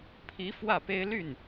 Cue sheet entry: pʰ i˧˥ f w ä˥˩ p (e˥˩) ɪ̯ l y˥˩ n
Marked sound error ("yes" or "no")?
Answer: yes